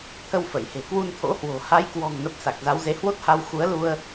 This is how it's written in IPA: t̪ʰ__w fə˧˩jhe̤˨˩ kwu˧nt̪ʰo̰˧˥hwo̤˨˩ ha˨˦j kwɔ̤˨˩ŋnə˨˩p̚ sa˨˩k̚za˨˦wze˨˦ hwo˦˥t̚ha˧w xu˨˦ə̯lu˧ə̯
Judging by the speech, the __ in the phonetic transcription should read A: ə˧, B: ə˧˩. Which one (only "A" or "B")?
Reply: A